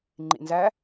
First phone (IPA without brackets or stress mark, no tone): ŋ͡ǃ